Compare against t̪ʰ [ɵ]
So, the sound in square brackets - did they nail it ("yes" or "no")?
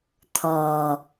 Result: no